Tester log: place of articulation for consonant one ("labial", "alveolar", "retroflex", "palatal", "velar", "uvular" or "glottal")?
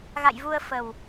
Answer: velar